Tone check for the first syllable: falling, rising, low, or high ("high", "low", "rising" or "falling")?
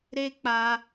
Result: high